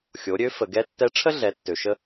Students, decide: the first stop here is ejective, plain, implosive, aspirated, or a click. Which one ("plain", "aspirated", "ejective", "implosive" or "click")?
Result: plain